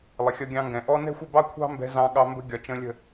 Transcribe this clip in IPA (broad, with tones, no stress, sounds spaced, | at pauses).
lˠ ɪ˨ xʲ ʌ˧ ɡʲ ɑ̃˧ ŋ ɡ ɛ̃˨ ʔ ɔ˧ n ɛ̤˦ xʷ ɪ˦˨ b ɑ˦ kʷʰ ɑ̤˦ m b ɛ̤˧ z ɑ̃˧ ɠ ɑ˧ m b ə̤˦ ɡʲ ɒ˨ t͡ʃ ə̃˧ lʲ ə̤˦˨